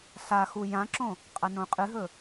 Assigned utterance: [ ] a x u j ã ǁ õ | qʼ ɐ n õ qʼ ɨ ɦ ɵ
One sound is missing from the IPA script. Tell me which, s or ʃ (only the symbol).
s